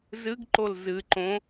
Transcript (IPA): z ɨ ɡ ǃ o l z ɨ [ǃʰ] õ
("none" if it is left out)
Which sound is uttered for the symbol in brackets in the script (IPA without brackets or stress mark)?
ǃ